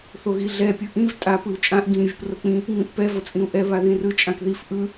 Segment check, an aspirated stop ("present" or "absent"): absent